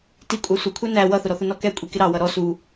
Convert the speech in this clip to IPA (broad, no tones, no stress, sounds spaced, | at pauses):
t i kʷʼ ɑ sʷ ʌ kʷʰ æ n æ w ʌ θ ʊ ɾ ɔ θ ʊ n ɔ k ɛ kʷʼ i k ɪ ɾ ɑ w ʌ ɾ ɔ s u